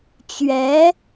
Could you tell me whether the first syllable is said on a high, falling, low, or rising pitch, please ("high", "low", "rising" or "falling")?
rising